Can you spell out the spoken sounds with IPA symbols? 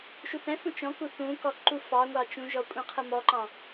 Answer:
ʃ u θ ɛ̃ f ũ t͡ʃ ɔ̃ k u θ ũ k ɔ ǃ u f ɑ ŋʷ ɑ t͡ʃ ũ ʒ ɔ kʷʼ ɛ̃ qʰ ə m ɔ ǃ ɑ̃

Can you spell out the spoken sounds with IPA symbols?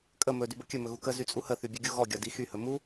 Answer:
kʼ ə m ɵ d y b ə kʲ ɵ m ɵ ɣ u k ə z y t͡sʼ u h ə θ y bʲ ɵ ɡʲ u ɣ ɔ ɡʲ ɒ d i x y h ɵ m u

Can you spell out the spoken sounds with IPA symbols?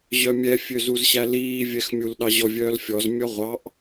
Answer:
ʑ œ mʲ ɛ fʲ ø z u z ɕ æ l iː vʲ ɛ x mʲ u l ɗ ɑ ʑ ɔ vʲ œː l fʲ ɔ z mʲ ɔ ʁʷ ɑ ʔ

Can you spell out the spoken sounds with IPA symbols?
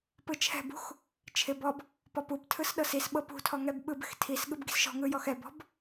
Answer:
p ɯ t͡ʃʰ ɛ̤ b ṳ x | t͡ʃʰ ɪ b ɔ b | p ɔ p u b tʰ ɯ s ɗ ɤ s i s ɓ ɤ p ṳ tʰ ɔ ŋ ɛ b ɓ ɯ b ɪ x tʰ i s ɠ ɯ b ɡ i̤ s ʃ ɔ̤ ŋ ɯ j ɔ x ɛ b ɔ̤ b

